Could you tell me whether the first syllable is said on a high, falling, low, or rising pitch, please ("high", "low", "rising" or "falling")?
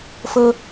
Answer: low